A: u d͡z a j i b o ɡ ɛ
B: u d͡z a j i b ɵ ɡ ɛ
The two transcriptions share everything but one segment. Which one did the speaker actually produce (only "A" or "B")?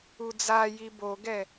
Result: A